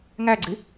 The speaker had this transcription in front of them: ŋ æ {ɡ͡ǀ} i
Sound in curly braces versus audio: correct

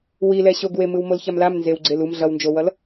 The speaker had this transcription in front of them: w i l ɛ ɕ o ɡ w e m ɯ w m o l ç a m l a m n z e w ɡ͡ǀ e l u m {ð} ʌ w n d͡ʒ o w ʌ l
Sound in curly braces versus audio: incorrect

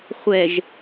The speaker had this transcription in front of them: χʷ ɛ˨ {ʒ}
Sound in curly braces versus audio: correct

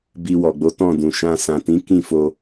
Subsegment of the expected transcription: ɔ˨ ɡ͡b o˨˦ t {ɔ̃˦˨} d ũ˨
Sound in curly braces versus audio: correct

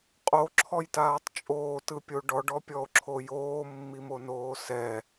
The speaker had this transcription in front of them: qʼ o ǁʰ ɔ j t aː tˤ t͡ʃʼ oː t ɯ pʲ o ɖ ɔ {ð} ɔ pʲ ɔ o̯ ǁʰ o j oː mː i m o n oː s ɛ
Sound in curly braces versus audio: incorrect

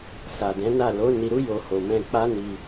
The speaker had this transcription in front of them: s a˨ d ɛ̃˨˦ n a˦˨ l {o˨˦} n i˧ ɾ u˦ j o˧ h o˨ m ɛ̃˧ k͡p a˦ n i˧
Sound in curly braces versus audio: correct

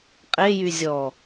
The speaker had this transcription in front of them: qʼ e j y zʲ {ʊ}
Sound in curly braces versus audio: incorrect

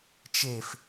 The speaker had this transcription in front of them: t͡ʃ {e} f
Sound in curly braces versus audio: correct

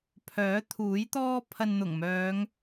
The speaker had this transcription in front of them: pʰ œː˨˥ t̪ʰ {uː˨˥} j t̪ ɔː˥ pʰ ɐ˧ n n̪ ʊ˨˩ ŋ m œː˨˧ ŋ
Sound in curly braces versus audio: correct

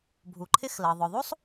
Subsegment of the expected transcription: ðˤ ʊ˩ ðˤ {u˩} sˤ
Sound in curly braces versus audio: incorrect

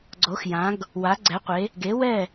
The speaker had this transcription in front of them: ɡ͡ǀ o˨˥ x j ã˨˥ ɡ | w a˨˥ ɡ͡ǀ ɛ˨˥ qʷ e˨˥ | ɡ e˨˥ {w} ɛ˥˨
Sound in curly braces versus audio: correct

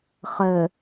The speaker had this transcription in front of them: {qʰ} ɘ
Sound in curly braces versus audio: incorrect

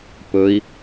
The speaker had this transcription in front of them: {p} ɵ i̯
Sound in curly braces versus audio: correct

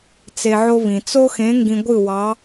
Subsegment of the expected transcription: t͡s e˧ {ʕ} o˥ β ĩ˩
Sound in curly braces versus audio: correct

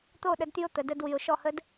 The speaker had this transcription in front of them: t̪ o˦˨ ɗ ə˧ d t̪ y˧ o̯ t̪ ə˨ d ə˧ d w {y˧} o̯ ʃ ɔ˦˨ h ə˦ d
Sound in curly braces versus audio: incorrect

